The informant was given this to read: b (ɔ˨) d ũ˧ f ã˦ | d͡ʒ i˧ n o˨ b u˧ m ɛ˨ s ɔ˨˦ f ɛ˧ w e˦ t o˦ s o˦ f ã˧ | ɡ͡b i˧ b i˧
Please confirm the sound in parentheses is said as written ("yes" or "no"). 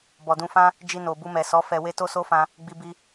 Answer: yes